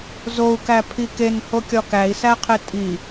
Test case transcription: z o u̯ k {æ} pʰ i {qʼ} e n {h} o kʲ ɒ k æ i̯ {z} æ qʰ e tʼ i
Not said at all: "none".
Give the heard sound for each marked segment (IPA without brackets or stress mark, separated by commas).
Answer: æ, k, h, s